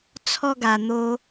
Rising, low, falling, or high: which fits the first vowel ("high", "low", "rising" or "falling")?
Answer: high